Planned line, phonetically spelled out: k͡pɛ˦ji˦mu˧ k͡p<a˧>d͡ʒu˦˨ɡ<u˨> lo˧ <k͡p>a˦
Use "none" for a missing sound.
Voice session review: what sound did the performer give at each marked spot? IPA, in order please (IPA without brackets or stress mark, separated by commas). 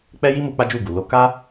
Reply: a˦, u˨, k